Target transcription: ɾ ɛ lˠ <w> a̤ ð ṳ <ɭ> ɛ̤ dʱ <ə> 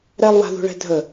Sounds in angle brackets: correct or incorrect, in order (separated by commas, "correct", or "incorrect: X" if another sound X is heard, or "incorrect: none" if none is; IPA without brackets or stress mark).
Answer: correct, correct, correct